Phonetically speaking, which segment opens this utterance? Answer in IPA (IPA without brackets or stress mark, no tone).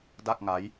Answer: d